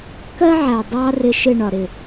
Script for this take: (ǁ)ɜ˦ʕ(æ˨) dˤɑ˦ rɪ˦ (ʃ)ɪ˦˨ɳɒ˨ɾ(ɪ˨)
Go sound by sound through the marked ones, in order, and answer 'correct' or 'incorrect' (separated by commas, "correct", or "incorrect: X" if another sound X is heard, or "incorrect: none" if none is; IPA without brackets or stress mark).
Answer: incorrect: k, correct, correct, correct